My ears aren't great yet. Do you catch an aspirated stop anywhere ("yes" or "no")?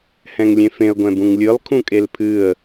yes